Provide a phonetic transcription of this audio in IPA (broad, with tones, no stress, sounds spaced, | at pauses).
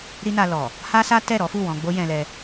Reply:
ɾ i˦ n a˧ l ɔ˨ | h a˦ s a˦ t ɛ˦˨ ɾ ɔ˨˦ f u˦˨ w ɔ̃˧ ɡ͡b o˦ j ɛ̃˧ l ɛ˧